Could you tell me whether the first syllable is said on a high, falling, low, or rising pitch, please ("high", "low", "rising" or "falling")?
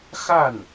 falling